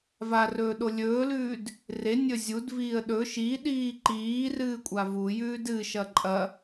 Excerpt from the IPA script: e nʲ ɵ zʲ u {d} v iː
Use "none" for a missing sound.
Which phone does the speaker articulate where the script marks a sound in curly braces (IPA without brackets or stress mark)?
d